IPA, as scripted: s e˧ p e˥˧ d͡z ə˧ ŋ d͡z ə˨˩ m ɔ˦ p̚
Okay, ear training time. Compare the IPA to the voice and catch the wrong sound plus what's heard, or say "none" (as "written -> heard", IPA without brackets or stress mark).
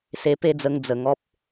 m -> ŋ